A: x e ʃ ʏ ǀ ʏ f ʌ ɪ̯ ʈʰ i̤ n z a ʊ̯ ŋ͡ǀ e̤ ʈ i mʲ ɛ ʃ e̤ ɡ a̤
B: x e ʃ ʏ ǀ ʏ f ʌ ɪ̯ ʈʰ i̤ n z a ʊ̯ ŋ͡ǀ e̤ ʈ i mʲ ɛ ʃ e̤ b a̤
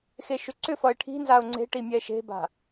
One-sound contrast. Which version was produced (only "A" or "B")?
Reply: B